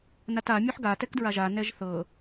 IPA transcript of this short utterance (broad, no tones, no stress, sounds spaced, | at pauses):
n a t a mʲ o ħ ɡ a t ɛ k d ɹ a ʒ a n ɛ ʒ θ ɤ